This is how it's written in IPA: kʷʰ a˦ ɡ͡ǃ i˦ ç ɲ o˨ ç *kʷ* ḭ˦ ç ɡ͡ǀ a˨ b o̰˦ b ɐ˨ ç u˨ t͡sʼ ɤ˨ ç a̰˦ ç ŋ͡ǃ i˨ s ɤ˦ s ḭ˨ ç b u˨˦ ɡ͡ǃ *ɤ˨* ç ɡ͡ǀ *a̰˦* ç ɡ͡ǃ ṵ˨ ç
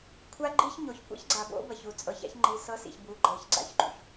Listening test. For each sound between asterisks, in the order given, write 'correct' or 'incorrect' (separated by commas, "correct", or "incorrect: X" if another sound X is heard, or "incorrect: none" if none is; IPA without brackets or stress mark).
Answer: correct, correct, correct